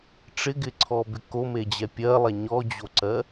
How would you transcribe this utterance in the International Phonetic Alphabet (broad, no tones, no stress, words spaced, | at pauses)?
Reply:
ʈ͡ʂɪɡɪǀʰɔbɪ komed͡ʑɛ pʲɜlˠɛ ɲɔd͡ʑoǀɜ